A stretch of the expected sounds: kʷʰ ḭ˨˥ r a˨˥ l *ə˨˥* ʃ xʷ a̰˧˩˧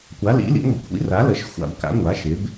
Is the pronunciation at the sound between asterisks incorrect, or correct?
correct